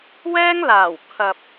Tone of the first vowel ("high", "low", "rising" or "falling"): high